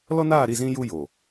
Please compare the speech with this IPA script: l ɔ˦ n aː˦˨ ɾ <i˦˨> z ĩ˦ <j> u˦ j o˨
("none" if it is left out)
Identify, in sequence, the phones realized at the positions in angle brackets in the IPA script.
i˦˨, j

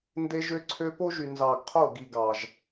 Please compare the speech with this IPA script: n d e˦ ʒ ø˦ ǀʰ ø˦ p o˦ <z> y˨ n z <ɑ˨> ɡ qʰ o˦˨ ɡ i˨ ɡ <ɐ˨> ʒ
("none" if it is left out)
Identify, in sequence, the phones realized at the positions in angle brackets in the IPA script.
ʒ, ɑ˨, ɑ˨

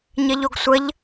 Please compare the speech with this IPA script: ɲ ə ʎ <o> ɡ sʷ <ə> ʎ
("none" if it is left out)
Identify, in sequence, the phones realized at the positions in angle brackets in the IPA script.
o, ə

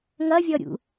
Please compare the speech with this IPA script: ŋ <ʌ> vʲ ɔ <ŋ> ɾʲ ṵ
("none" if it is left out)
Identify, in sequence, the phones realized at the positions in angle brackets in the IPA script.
ʌ, none

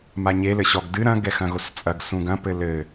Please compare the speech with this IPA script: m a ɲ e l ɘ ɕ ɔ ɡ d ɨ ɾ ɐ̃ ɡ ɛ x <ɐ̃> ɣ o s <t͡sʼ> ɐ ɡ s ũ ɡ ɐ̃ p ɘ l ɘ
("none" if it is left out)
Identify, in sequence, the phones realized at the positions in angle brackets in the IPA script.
ɐ̃, t͡sʼ

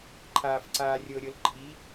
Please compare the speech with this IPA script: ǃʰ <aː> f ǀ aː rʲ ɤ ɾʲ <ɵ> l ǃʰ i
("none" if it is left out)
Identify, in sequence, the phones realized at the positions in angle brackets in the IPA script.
aː, ɤ

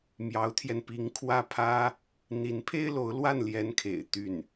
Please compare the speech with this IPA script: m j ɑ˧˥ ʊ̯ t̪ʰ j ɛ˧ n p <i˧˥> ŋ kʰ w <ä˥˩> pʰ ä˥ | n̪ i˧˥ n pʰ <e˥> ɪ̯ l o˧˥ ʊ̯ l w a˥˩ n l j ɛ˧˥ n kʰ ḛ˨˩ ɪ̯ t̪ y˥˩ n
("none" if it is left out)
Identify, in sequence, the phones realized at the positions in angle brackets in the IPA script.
i˧˥, ä˥˩, e˥

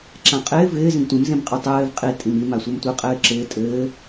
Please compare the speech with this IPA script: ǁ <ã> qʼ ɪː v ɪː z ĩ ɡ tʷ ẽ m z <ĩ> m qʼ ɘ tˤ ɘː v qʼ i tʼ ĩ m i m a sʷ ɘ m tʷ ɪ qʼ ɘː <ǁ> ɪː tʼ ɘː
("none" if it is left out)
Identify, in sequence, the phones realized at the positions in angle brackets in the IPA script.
ã, ẽ, ǁ

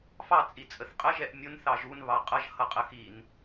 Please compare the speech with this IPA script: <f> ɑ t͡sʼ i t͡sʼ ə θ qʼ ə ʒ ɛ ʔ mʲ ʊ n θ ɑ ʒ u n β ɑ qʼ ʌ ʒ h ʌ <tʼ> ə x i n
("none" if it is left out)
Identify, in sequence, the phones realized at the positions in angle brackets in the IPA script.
f, qʼ

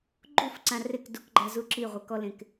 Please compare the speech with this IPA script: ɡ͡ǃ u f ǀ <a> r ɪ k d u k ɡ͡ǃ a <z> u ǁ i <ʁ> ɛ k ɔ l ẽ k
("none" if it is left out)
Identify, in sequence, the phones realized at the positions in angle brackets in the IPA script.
ã, z, ʁʷ

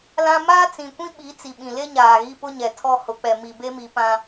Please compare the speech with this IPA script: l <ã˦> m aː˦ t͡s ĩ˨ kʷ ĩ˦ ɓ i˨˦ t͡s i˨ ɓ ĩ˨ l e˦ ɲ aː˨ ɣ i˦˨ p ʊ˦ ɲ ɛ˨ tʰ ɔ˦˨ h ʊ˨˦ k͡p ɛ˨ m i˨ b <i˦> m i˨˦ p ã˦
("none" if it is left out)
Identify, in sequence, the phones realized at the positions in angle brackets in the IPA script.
ã˦, e˦

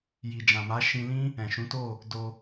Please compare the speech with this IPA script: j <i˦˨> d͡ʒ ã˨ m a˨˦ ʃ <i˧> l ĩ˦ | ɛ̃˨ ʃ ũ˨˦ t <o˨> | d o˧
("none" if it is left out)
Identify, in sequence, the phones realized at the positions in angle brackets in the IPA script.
i˨, ĩ˧, o˦˨

